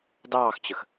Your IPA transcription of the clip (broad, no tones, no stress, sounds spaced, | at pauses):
d ɑː x t͡ɕ ə x